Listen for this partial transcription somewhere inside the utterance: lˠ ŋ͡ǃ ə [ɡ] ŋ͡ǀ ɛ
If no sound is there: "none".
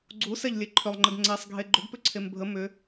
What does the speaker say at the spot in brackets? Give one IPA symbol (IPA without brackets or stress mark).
ɡ